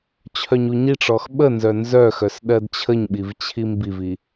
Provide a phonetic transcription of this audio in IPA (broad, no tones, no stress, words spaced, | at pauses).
t͡ɕʰœɲuɲiʈ͡ʂɔx ɓənzœ nzœxœs ɗɜdt͡ɕʰəɲɓiv t͡ɕʰimbivi